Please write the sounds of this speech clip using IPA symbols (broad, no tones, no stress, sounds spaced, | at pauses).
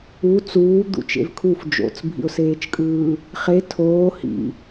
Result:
u t͡s uː d̪ ṵ t͡ʃ ḛ v kʰ u f d͡ʒ o̰ t͡s bʱ ḭ ʊ̯ s eː t͡ʃ kʼ ɯː | χ e tʰ oː h ḭ